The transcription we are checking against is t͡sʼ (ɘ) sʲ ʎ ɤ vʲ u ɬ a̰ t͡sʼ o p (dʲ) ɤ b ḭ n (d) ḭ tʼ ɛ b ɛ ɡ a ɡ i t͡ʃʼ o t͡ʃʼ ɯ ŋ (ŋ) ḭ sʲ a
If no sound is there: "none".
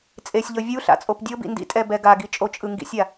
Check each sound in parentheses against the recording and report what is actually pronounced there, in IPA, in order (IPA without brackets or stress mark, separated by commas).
e, dʲ, d, ɡ